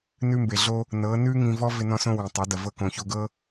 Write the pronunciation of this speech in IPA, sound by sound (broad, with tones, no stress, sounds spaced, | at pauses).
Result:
n ʉ˧ m b e˨ ɮ o˧ | n ɤː˨˦ n ʉː˦ ŋ ĩ˧ v ɔ˦ v ɪ˧ n ɔ̃˧ s õ˧ w ĩ˨ tˤ ɐ˨˦ d ɐ˨ v ɤ˧ k õ˨ ç o˧ ɡ ɤ˦